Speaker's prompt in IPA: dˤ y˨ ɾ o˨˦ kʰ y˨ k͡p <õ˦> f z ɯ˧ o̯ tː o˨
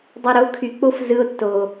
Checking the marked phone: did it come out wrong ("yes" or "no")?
yes